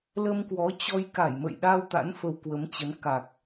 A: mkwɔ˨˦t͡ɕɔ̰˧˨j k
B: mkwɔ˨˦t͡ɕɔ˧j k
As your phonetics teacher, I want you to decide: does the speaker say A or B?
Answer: B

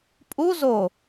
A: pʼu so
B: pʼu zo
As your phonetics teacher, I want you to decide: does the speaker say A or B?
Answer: B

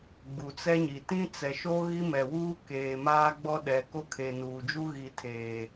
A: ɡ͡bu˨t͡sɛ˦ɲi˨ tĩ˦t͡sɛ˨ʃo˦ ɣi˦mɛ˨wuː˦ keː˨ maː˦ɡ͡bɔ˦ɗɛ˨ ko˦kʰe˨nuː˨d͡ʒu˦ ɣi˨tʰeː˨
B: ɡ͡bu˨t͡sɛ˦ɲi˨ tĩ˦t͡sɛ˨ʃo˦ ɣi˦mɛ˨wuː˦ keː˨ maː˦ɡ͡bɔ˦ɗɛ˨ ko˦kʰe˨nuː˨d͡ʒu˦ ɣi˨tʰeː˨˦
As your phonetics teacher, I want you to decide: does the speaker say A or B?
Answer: A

